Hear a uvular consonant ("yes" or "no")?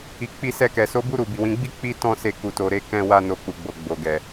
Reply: no